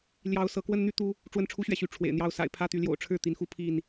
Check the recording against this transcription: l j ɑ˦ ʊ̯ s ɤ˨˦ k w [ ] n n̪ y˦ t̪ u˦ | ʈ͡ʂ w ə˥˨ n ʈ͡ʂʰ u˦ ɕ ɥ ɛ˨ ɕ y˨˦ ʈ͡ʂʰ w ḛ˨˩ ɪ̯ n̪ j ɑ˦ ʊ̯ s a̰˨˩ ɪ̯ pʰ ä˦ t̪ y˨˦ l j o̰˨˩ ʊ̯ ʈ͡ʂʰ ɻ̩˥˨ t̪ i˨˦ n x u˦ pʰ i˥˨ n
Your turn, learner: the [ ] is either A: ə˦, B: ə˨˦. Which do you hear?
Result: A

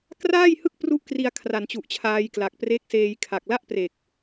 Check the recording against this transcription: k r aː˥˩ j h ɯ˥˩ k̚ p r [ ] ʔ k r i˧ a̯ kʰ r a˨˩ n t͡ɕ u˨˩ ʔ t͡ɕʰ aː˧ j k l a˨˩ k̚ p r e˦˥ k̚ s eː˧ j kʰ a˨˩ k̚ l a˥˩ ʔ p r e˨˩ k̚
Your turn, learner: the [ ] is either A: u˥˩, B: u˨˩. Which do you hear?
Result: A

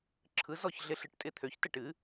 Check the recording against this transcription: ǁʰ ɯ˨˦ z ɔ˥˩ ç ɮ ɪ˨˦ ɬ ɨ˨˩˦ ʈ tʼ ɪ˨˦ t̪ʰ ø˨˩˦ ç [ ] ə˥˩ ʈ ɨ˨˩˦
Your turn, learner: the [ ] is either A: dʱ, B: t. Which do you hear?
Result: B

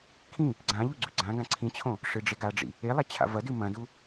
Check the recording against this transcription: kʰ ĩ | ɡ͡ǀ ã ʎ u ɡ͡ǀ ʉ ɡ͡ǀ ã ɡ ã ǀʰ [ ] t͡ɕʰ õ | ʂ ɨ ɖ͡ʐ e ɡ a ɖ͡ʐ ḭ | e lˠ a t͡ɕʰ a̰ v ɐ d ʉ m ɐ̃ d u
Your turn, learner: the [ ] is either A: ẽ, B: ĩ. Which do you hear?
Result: B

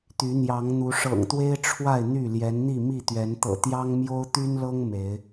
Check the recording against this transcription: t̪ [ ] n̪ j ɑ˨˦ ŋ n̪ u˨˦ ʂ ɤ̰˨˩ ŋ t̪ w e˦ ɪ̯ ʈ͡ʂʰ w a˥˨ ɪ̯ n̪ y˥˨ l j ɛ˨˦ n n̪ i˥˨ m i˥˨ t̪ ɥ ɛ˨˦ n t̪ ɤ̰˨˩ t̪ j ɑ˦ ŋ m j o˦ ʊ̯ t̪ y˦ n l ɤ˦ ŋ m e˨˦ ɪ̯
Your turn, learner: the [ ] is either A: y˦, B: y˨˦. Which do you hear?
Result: B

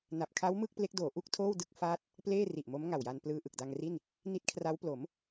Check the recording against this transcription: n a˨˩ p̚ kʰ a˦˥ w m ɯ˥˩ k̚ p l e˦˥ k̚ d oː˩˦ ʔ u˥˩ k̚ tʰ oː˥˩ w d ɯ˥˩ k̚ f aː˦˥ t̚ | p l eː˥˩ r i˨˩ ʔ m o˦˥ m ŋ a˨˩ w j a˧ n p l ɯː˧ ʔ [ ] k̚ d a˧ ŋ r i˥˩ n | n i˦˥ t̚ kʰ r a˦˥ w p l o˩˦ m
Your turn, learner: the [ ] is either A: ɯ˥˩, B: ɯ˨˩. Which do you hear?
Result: B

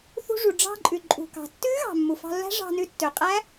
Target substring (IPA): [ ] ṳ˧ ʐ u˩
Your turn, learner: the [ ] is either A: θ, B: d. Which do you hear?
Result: A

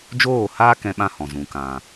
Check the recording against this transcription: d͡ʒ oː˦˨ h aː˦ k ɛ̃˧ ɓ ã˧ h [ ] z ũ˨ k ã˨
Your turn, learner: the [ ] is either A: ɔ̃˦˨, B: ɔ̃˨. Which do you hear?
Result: B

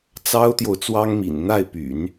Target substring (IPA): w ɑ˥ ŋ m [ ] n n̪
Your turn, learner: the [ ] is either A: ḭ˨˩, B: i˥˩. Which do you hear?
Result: A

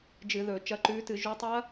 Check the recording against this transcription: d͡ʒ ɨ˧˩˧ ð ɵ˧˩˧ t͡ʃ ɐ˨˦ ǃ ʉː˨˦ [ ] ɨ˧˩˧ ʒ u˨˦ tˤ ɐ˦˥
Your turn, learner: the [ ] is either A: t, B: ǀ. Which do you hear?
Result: A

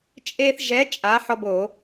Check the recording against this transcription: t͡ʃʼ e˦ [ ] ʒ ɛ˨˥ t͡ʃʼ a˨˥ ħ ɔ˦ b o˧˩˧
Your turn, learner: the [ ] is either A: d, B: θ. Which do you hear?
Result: B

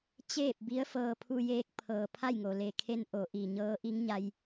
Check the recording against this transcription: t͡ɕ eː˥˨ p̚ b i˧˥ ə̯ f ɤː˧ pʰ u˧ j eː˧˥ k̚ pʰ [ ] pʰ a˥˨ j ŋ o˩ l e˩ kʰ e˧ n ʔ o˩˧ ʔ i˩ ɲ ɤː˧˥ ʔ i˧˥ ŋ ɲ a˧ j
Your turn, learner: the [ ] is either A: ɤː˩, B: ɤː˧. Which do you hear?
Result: A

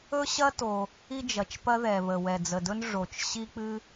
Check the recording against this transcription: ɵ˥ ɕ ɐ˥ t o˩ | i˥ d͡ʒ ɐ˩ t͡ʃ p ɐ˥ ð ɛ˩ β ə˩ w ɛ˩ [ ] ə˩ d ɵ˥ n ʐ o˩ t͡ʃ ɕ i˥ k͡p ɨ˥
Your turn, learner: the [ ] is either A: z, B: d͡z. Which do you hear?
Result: B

